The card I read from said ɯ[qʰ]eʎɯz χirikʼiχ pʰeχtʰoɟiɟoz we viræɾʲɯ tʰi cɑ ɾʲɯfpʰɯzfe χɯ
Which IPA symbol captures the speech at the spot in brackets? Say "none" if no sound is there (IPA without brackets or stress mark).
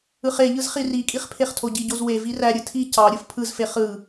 χ